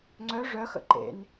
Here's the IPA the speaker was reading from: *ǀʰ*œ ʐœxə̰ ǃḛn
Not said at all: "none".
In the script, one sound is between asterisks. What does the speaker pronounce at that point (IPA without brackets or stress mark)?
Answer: ŋ͡ǀ